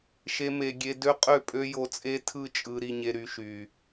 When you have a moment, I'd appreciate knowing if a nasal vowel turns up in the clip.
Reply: no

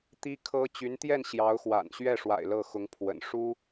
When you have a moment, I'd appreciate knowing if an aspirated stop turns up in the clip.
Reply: yes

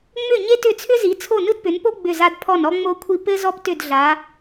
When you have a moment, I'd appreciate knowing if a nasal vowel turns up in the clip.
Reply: no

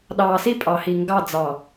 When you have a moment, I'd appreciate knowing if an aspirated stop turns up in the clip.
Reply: no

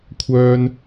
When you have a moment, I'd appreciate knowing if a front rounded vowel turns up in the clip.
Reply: yes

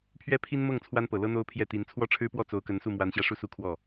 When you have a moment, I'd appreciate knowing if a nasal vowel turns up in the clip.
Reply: no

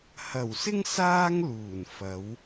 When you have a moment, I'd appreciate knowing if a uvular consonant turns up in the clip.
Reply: no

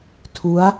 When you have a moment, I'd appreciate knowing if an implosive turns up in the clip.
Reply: no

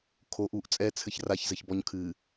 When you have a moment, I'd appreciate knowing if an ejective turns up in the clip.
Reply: yes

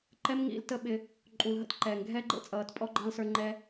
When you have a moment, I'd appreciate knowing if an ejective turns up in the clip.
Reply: yes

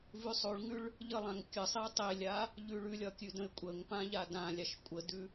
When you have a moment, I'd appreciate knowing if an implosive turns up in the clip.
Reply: no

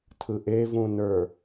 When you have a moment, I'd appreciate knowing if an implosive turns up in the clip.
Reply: no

